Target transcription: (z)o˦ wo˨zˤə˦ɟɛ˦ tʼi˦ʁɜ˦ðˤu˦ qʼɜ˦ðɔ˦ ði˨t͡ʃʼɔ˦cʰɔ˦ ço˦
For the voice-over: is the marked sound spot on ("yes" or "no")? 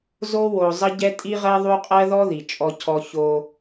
yes